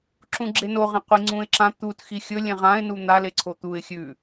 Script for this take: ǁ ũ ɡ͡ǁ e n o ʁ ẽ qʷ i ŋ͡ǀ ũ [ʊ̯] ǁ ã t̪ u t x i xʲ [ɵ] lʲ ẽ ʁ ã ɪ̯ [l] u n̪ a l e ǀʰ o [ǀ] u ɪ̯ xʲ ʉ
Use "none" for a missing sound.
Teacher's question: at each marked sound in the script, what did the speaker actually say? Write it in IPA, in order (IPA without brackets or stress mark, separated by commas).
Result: ɪ̯, ɵ, n, t̪